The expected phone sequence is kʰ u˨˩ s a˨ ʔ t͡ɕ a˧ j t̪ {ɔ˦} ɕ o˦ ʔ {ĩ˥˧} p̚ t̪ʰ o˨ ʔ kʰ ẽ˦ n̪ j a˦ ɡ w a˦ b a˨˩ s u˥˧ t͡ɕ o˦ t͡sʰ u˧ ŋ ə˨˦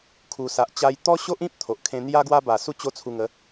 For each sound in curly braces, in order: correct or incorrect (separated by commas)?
correct, incorrect